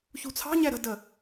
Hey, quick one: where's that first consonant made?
palate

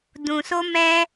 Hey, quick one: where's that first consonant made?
tongue tip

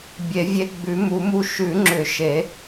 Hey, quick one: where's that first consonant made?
lips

